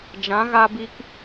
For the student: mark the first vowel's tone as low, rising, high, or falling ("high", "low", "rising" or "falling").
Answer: rising